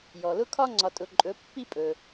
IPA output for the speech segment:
jɔ˩lʊ˧kʰɒ˧ ŋ͡ǀɒ˩tʼʊ˩ ǃʼɵ˩˧pːi˧pʼɵ˩

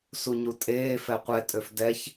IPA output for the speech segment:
suɲutʼeː fɛqʷɛ tʼøfdɛç

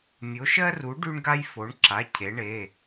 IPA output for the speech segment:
mʲo˨˦ʃɜ˦ru˨˦ ɖy˦ɳɡa˦jfo˨˦ɳǁa˩˧˩ cʰe˨˦ɳe˩˧˩

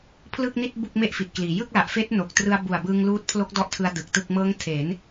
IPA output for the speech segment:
pʰlɯ˥˩k̚ni˥˩t̚ bu˥˩k̚ me˥˩ʔfi˨˩t̚kliː˩˦ jɯ˥˩k̚la˨˩ʔfeː˦˥t̚ no˨˩k̚ trɯ˧a̯bu˨˩a̯bɯː˧ŋ luː˦˥t̚pʰlo˦˥k̚dɔ˦˥ʔtʰɯ˧a̯ dɯ˨˩k̚tɯ˥˩k̚ mɤː˦˥ŋ tʰe˩˦n

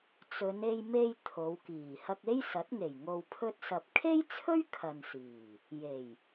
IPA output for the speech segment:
t͡sɵ˨˧ne˧jme˧j t̪ʰo˨˧wkiː˨˩ hɐ˧k̚e˥jsɐ˨˥t̚ŋe˨˩j ŋo˧wpʰɵ˥t̚sɐ˧p̚ kʰe˥jt͡sʰɵ˥ɥ kʰɐ˨nsiː˨˩ | je˨˩j

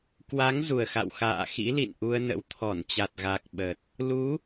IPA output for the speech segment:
kwa˨˦ŋ zu˨˩ə̯xa̰˧˨w xa̰ː˧˨xḭ˧˥lḭ˧˨n ʔu˧ə̯nə̰˧˥w t̪ʰɔ˧˩nt͡ɕa˨˩t̚ ɣa˨˩k̚ ɓə˨˩t̚ | lu˨˦

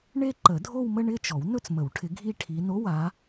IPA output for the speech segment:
ɳe˥˧ǃə˨˩˦dʱo˥˧wmə˥˧ ɳɪ˥˧t͡ʃɔ˨˩˦w nɵ˥˧t͡smə˨˩˦wʈʰɪ˨˦ ɡʱi˥˧ʈʰi˨˦ no˧˥˧wa˨˦

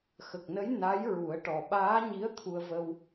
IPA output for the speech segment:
xə˨˩k̚nə˧˥j na˧˥jɹu˨˩˦ə̯ʈɔ˨˩ ɓaː˧˥ɲi˧˥ə̯ t̪ʰu˧ə̯və˧w

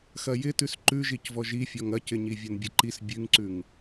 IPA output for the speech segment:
xɐjɪtʉs ǃʉʒicvɔ ʒifʲɔŋ ɐcɪɲi vʲɐnbʲɐǃis bʲʉŋǀʉŋ

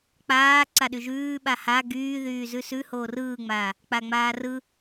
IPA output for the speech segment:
k͡paː ǀaɗyʒʉːɓa ha ɡyː ðyːzʉsʉ hoːrɯːŋ͡maː | k͡paŋ͡maːrɯ

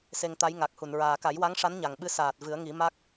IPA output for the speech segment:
se˧ŋt̪a˧˥j ŋa˨˩k̚hu˨˩˨n ɹaː˨˩ka˨˩˦jwa˧˥ŋʂa˧˥n ɲa˨˩ŋɓɨ˧˥ saː˨˩t̚ vɨ˨˩˦ə̯ŋi˨˩˦ma˦˥k̚

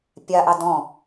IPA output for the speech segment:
pʲaʔɑ dɔ̃

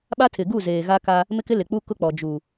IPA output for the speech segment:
ɓa˦tʰɪ˨ɡu˦˨ zeː˨ɣa˦ka˦ | mɪ˦kɪ˦ lɪ˨k͡pu˦kʊ˦k͡pɔ˨ d͡ʒu˨

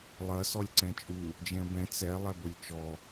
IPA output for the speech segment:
lˠɐ sɔlʲǀɛ̃t͡ʃʼu | d͡ʒɛ̃bɛ̃ t͡sɛ lˠɛbolʲt͡ʃɔ

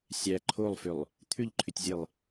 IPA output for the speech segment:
sʲæ ǃʰolˠfʏlˠ | t̪ʰʏʎǃʰʏtʲzʲelˠ

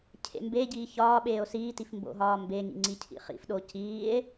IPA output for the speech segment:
cʰḛmbeɟiː çɒːɓeːo̯ siːtif mbo̰ɦɒːmbeŋḭ ŋ͡ǀicʰḭχḭfɗo ciːe̯

